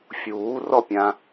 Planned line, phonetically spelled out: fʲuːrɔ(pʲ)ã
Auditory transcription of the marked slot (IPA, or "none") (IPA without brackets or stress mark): pʲ